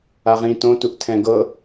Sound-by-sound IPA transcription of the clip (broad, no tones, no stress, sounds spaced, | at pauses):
a ʁ ĩ t õ t u ʔ tʰ ɛ̃ ɡ ɤ